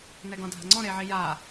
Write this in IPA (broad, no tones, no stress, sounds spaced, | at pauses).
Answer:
n ɛ ɡ ɔ̃ dʱ a̤ ŋ͡ǀ ɔ̃ ɾ e ʕ i j a